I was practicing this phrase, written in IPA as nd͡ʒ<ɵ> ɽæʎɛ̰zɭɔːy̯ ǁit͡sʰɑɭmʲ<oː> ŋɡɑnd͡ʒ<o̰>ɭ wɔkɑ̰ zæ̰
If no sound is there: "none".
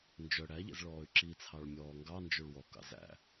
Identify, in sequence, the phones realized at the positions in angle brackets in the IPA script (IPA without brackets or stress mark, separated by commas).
œ, ɔː, o